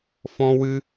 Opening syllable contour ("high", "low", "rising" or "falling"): high